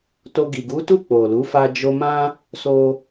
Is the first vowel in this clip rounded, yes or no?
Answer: yes